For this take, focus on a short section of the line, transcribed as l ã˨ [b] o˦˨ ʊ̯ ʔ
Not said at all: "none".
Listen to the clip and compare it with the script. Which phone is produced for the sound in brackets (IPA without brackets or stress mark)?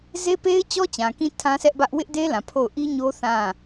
pʰ